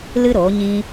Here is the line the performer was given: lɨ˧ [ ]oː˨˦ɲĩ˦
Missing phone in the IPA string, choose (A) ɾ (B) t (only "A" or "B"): A